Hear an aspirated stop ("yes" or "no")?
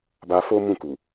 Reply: no